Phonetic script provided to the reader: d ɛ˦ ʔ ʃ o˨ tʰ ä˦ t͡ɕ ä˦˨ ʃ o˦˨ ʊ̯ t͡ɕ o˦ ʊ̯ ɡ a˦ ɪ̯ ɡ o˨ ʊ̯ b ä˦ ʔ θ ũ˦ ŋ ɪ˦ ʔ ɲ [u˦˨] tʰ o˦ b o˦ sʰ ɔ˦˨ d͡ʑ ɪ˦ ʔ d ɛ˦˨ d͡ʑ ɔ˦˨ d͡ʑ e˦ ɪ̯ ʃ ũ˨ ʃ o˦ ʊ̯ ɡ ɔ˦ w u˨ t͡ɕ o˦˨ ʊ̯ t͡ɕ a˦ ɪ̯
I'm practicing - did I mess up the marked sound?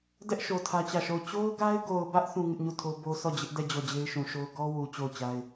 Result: no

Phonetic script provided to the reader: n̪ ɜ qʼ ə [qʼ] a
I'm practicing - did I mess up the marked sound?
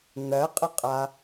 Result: no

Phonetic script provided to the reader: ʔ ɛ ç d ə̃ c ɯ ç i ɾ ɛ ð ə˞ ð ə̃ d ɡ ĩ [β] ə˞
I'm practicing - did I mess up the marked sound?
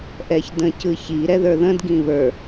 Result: no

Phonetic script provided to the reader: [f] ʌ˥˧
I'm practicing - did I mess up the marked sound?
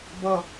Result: yes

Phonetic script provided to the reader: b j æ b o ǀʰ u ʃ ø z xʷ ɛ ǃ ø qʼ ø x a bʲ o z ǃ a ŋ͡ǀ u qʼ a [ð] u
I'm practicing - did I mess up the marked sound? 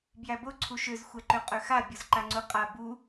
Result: yes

